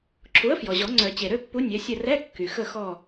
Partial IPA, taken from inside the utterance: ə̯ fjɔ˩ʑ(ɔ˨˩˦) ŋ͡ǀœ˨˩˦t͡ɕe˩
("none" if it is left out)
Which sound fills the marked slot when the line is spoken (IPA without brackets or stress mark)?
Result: ɔ˨˩˦